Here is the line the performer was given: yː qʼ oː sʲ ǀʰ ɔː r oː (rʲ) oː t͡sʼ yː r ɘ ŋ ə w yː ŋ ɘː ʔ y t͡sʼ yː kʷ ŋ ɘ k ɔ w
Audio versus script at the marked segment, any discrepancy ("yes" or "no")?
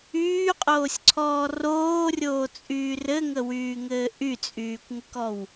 no